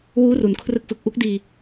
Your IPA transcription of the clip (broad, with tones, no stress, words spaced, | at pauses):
wuː˦˥ru˩˦nkʰrɯ˦˥k̚fɯ˨˩k̚ ʔu˦˥k̚diː˧